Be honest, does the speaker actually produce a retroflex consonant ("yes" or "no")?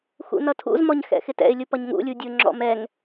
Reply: no